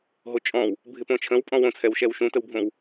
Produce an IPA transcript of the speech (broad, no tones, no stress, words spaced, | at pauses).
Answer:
ɦot͡ʃʼɔ̃w | bʱɪpõt͡ʃʰə̃w pʼɔ̃wõt͡sʰɛwʃɛw ʃũtəwbʱõw